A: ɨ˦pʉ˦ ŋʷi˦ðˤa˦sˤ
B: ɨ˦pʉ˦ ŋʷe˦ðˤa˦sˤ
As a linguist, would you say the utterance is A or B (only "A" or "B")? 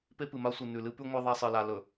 B